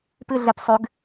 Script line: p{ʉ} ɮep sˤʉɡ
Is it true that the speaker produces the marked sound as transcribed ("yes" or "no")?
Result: no